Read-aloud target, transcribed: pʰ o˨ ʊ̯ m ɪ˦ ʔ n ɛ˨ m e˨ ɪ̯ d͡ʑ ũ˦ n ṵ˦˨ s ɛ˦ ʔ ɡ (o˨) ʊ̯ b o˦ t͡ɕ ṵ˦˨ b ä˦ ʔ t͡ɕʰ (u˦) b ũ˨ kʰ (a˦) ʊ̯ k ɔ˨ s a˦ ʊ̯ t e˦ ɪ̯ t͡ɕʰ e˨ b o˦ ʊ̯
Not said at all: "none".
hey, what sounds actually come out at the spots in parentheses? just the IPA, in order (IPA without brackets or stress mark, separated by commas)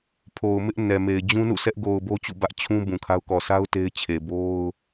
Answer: o˨, ũ˦, a˦